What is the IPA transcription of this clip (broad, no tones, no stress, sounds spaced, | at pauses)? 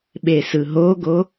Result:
ɓ e s ɯ ɦ o ɡ o